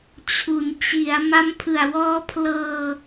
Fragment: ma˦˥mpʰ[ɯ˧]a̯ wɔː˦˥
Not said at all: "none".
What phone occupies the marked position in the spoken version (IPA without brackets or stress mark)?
ɯ˨˩